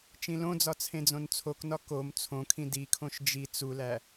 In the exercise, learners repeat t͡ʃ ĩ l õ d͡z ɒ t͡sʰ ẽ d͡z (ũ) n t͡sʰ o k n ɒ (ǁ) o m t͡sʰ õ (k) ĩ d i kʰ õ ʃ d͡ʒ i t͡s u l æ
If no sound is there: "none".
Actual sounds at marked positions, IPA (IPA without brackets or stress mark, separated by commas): õ, k, kʰ